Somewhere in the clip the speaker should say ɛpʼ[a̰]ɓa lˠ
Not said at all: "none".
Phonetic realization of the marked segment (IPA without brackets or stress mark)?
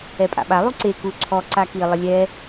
a̰